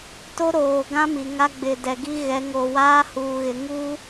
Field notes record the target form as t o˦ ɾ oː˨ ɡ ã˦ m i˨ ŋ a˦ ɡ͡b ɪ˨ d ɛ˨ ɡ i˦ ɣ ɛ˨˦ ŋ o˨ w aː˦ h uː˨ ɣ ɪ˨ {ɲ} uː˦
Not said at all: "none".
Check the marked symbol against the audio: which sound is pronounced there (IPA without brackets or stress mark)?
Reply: ŋ